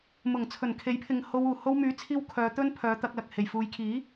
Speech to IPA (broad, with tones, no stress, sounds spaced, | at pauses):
m ʊ˨˩ ŋ t͡sʰ ɵ˨˩ n kʰ e˨˥ j pʰ ɪ˨ ŋ h o˧ w uː˨˩ h o˧ w m yː˨˥ t͡sʰ iː˧ w kʰ œː˨˧ t̪ ɵ˥ n pʰ œː˨˧ t̪ ɐ˧ k̚ l ɐ˨ k̚ h e˨˩ j f uː˨˧ j kʰ iː˨˥